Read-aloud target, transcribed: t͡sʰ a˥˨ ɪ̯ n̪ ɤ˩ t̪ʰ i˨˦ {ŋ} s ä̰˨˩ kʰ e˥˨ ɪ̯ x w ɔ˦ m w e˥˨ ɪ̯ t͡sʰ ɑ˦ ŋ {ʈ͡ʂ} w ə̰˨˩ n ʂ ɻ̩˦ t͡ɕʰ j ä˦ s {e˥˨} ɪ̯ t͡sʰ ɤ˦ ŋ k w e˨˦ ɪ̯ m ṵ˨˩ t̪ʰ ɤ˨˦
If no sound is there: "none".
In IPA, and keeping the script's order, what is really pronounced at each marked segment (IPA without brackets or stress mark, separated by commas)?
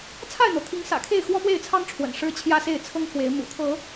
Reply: ŋ, ʈ͡ʂʰ, e˥˨